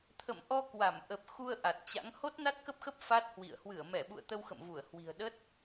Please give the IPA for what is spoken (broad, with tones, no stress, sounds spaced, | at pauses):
t̪ʰ ə̰˧˨ m ʔ ɔ˧ k w a˧˩ m ʔ ə˨˩ p̚ x u˧ ə̯ ʔ a˨˩ t̚ t͡ɕ a̰˧˥ ŋ h o˦˥ t̚ n a˦˥ t̚ k ə˦˥ p̚ x ə˦˥ p̚ f a˦˥ t̚ h w ḭ˧˨ ə̯ h w ɨ˧˩ ə̯ m ɛ˧˩ ɓ ṵ˧˨ ə̯ t̪ ə˧ w x ə̰˧˨ m v u˧˩ ə̯ h w i̤˨˩ ə̯ ɗ ə˦˥ t̚